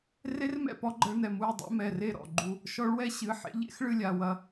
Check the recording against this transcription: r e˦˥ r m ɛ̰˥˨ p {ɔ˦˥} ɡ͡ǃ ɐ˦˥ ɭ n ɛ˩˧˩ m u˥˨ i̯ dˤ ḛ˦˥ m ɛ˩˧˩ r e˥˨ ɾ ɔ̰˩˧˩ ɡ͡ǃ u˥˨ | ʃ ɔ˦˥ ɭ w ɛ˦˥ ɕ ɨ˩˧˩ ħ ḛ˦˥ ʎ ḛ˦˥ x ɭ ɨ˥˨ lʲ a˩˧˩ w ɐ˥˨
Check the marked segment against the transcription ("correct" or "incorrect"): correct